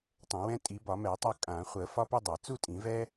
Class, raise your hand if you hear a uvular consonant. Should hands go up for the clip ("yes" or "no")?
yes